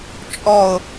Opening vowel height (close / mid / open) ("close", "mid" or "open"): mid